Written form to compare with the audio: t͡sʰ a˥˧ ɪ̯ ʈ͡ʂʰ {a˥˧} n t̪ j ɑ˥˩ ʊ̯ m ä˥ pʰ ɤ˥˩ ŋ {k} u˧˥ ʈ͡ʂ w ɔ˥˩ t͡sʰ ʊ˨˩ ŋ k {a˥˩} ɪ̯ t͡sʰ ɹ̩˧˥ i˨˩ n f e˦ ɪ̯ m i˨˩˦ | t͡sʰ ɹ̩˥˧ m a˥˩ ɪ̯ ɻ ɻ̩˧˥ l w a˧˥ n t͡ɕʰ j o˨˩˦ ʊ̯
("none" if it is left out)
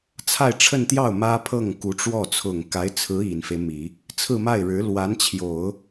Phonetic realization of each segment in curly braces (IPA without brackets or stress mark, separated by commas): ə˥˧, k, a˧˥